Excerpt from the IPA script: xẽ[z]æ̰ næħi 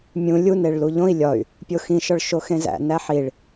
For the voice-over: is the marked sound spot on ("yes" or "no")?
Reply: yes